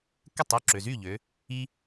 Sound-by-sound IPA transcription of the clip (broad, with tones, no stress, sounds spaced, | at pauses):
k ə˥˩ tˤ u˥˩ ǁ ø˩ z y˥˩ ʎ ø˩˧ | i˧